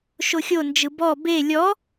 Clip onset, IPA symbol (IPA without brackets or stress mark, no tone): ʃ